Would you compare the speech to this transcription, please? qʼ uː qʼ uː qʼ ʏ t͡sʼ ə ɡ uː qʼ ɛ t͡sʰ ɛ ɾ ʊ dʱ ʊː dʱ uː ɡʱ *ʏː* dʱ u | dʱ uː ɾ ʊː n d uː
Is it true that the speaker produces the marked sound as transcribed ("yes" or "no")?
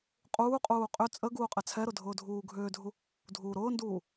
yes